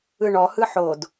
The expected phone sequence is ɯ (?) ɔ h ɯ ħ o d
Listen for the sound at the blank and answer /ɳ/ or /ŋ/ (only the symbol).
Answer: ɳ